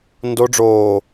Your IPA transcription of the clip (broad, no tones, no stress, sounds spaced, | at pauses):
n d o ɖ͡ʐ oː